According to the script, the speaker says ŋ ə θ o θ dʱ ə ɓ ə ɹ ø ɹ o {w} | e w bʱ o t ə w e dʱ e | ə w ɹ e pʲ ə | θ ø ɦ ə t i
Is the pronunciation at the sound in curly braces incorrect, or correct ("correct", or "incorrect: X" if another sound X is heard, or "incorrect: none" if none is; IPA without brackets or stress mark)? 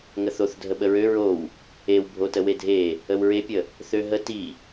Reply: correct